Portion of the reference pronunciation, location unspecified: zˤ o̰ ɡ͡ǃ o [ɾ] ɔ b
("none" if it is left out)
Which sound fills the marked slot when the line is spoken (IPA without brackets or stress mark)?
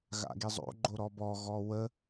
ɾ